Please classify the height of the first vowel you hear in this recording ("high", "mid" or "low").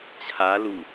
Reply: low